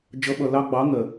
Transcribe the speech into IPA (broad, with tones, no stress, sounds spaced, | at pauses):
d͡ʒ ʌ˨˦ ɓ ʌ˨ l ɑ˧ ɡ͡b ɑ˨˦ ŋ ɜ˨